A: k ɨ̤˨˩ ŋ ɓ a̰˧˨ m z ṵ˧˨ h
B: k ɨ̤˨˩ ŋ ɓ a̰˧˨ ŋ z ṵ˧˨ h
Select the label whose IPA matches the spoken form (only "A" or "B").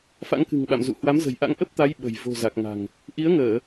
A